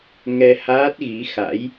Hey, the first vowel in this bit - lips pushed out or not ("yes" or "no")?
no